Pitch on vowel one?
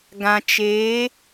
low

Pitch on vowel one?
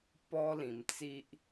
high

